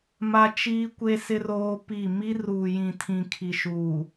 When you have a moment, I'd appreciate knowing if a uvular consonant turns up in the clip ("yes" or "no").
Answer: no